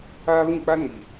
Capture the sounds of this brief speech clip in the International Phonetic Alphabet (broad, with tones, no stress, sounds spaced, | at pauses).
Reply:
aː˦ β ĩ˦˨ k͡p a˦ n i˨